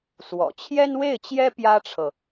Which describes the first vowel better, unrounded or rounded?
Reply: rounded